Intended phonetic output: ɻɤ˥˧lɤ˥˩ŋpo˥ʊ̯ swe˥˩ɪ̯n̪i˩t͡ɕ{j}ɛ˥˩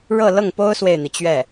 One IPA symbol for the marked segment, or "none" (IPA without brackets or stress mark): ɥ